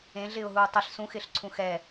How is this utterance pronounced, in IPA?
ẽ ɮ ɪː ʊ̯ ɦ uː tˤ ɪ ɬ s ũ x ɪː ɬ ǀʰ ũ x ɛ

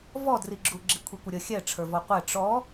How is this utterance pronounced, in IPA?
v ɔ d r i ɡ͡ǁ u ɡ͡ǁ i kʷʰ i kʷ ə ɾʲ ə xʲ ɛ ʈ͡ʂʰ ə˞ v ɔ qʷ ɛ ʈ͡ʂ ɔ

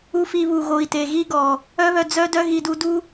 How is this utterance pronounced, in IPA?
u˧ f i˧ β u˨ ɣ o˨ i̯ t e˨ ɣ i˦ ɡ ɔ˨ | œ˦ β œ˧ d͡z œ˦ d œ˦ ɣ i˧ d u˧ d u˦

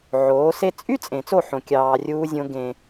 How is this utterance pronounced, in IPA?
ʕ oː˨˦ s e˧ t͡sʼ y˦ t͡sʼ ẽ˨ t͡s o˦˨ ħ õ˨ kʲ ɑː˧ rʲ uː˦ zʲ õ˦ ɡ ẽ˧

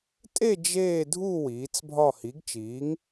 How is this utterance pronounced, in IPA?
tʼ e˥˧ d͡ʒ eː˥˧ dʱ u˥˧ w iː˨˥ t͡s bʱ ɒ˥˧ h i˨˥ ɡ t͡ʃ iː˨˥ ŋ

